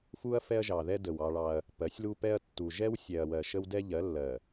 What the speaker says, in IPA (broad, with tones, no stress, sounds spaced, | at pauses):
f u˦ ɐ̯ f ɛ˦ ɐ̯ ʒ ɑ˨ ð ɛ˦ d ə˨ w ɑ˦ ɭ ɑ˦ ɐ̯ | p ɜ˨˦ sʲ l u˦ p ɛ˦ ɐ̯ tː u˨ ʒ ɛ˦ w sʲ ɛ˨ ɐ̯ w ɜ˨ ʃ ə˦ w d ɛ˦ ʎ ɜ˨˦ lː ɜ˨